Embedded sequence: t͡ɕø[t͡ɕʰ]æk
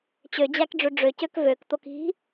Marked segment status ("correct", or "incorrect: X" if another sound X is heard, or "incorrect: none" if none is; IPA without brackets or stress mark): incorrect: d͡ʑ